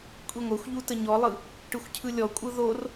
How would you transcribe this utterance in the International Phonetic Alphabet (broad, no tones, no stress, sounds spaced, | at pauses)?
kʷʼ i ŋʷ ɛ xʷ ʎ u t ə ɲ ɔ lˠ ɯ | ʈ ɯ xʷ cʰ ɯ lʲ ɔ kʷʼ ɯ ð o r